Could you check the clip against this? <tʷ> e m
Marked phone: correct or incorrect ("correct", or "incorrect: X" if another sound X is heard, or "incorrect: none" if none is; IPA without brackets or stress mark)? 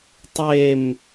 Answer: incorrect: tˤ